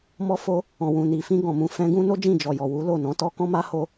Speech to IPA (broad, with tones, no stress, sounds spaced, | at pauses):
m ɔ˧ f o˧ | ɔ̃˨ w ũ˨ n i˨ f ĩ˧ ɡ ɔ̃˨ m ũ˨ f ɛ̃˧ ɡ ũ˦ n o˦ d͡ʒ ĩ˦˨ d͡ʒ ɔ˨ j ɔ˨ w u˨˦ l o˦˨ n ɔ̃˨˦ t ɔ˧ k ɔ̃˦ m a˦ h o˧